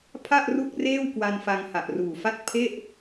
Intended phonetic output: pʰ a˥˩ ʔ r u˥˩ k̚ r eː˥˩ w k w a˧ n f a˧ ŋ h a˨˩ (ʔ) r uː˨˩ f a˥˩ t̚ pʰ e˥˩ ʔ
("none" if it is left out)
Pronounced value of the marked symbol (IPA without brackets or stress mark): ʔ